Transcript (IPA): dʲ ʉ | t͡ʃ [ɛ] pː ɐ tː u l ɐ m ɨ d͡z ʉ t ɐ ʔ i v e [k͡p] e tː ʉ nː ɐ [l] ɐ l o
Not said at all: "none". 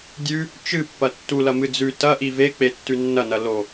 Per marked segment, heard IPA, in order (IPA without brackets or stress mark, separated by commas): ɨ, k͡p, n